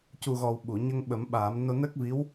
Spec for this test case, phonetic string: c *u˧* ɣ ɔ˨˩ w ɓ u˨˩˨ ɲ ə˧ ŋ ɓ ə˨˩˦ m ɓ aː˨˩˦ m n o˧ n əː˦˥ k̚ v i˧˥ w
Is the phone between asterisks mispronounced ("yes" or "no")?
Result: yes